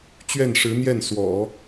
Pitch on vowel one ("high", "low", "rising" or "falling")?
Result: falling